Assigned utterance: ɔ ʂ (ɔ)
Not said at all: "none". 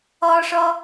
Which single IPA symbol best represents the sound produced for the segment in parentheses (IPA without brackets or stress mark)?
ɔ